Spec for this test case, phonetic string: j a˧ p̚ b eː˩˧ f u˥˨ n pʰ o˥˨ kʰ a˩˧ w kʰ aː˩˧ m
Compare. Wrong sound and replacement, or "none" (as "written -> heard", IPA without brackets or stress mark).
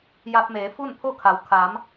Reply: b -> m